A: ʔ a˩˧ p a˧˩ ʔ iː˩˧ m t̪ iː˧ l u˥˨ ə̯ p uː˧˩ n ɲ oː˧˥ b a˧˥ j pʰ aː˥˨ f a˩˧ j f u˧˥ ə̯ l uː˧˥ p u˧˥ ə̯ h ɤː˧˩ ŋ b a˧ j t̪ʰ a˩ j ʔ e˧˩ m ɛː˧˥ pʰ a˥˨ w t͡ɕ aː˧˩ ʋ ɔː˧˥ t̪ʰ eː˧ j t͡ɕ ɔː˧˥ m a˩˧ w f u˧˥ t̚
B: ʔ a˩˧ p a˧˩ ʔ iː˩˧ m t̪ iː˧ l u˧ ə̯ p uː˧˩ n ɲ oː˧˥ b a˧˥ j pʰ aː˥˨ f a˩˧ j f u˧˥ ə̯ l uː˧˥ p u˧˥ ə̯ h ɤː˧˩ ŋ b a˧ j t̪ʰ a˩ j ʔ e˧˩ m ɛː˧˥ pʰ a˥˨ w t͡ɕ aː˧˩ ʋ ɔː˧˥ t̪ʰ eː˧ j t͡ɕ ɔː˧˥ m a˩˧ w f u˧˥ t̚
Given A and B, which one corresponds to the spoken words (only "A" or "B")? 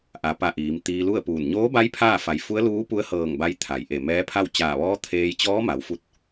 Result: A